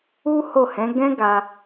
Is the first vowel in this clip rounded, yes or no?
yes